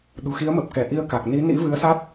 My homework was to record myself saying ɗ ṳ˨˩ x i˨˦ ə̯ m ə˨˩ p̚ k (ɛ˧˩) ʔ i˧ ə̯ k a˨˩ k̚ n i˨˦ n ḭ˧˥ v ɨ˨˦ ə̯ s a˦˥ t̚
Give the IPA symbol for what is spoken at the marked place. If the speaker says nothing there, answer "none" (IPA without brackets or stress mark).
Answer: ɛ˧˩